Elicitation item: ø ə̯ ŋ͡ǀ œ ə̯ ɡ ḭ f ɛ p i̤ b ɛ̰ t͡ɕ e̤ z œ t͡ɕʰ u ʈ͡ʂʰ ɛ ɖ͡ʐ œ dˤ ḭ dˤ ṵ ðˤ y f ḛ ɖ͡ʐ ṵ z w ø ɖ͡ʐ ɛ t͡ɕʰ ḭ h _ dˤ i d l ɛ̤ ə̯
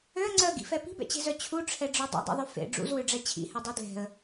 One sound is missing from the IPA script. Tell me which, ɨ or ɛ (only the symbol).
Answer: ɛ